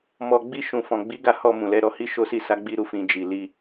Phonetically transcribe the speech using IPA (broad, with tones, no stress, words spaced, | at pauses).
mɔ˧ ɡ͡bi˧ʃũ˨ fɔ̃˨ɡ͡bi˨˦ɡa˧ hɔ˧ mũ˨lɛ˨˦ ɾɔ˧hi˦ʃo˦ si˦˨sa˨˦ ɡ͡bi˧ɾu˧fĩ˨ d͡ʒi˨li˧